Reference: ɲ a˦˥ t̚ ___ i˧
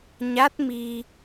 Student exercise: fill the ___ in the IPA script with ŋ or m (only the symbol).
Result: m